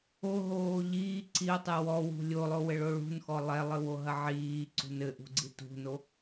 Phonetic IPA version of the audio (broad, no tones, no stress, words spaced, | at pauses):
oɦoː ʎiː ǀio̯tˤɨ wɔwṳ lʲolˠowɘɭo ɭṳnxɔ lˠɛlˠɨwoɦɐ ʕiːǀṳn ɘʔṳɡ͡ǀi tṳno